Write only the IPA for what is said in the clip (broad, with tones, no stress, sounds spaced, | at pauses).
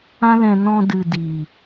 ã˦ l ɛ̃˧ n ɔ̃˧ d ɨ˨ d i˨